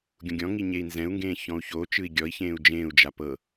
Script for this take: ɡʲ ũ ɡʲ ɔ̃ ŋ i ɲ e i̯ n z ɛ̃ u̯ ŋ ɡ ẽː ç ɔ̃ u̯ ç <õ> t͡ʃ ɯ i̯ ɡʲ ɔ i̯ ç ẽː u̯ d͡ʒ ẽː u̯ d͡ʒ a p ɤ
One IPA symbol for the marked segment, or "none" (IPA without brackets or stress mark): o